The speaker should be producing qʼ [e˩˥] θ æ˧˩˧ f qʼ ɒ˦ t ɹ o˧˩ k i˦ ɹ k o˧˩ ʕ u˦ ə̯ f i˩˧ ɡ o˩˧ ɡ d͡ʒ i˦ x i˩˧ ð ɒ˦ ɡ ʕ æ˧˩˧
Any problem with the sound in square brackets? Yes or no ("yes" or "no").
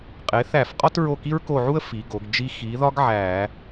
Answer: no